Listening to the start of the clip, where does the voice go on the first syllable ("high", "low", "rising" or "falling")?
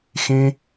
high